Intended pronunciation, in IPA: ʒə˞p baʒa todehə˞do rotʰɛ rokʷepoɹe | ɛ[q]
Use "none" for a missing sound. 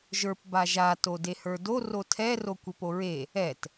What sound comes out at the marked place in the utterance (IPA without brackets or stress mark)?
t